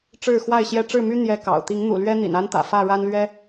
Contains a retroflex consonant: yes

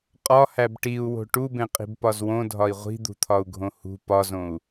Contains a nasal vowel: yes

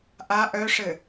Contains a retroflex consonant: yes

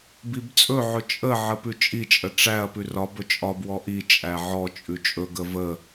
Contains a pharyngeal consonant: yes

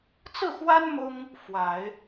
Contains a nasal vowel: no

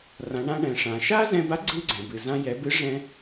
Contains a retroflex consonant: yes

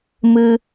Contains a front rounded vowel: no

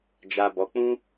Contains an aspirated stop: no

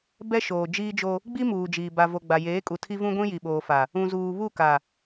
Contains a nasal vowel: yes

